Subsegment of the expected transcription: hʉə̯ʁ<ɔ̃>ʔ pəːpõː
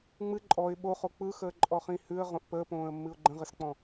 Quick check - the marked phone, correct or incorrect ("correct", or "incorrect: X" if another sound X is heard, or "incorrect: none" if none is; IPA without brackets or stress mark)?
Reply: incorrect: õ